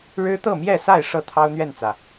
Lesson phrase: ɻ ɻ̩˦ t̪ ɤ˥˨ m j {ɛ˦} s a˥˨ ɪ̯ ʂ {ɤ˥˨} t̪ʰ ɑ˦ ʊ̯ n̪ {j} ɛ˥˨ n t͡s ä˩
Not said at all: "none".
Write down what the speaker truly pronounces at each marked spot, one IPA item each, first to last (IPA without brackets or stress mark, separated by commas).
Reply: ɛ˥˨, ɤ˥˨, ɥ